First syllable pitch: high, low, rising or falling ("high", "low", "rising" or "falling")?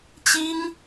high